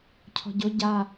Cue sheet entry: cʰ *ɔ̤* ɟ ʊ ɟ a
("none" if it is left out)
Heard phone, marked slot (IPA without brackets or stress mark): ɔ̤